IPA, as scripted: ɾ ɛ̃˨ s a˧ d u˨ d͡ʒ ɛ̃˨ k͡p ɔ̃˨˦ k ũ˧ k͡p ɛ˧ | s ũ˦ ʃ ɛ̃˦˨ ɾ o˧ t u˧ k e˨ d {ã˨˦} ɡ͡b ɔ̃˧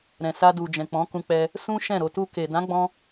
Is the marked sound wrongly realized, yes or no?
no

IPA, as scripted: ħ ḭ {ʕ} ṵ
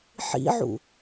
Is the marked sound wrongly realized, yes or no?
no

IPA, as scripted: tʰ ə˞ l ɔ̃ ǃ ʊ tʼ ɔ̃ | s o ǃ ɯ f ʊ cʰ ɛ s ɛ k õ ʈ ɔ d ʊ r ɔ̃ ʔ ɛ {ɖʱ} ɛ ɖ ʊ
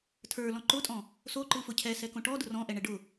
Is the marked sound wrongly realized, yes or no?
yes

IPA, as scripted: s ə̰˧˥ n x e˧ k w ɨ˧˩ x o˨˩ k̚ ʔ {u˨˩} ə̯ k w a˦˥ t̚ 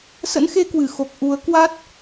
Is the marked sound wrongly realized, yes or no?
yes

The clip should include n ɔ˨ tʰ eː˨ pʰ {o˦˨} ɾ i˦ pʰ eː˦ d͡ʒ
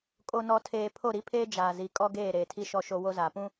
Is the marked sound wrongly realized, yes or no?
no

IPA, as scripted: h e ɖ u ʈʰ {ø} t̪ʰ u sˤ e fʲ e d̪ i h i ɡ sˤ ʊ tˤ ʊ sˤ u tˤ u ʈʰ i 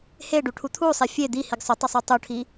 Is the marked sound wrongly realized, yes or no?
yes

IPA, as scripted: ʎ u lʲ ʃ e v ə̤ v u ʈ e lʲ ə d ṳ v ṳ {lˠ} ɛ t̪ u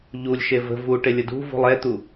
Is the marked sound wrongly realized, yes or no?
no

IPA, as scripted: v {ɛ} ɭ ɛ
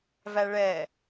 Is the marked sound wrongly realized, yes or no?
yes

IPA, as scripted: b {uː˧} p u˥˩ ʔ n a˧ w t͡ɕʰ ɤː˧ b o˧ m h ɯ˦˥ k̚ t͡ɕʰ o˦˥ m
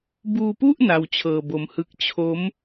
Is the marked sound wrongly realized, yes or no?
no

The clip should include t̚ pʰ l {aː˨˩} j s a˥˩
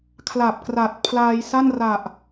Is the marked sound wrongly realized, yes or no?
yes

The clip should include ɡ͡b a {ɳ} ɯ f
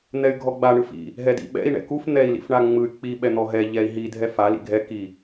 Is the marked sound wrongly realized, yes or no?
no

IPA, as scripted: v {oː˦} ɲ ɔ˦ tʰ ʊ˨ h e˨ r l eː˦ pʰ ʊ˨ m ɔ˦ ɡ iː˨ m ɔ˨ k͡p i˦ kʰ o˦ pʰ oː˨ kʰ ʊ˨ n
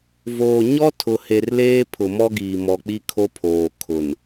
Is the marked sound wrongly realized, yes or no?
yes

